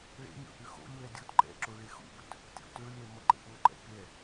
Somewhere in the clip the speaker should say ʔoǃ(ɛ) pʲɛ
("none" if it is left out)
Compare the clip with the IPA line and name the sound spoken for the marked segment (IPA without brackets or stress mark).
ɛ̰